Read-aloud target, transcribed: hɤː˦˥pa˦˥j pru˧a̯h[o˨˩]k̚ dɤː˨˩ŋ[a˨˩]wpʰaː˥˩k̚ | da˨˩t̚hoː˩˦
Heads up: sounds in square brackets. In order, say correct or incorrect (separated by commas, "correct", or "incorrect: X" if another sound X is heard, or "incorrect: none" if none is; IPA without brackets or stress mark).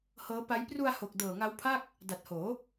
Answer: correct, incorrect: a˦˥